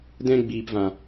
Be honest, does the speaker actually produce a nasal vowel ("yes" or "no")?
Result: yes